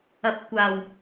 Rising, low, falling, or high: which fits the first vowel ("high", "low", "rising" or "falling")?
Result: rising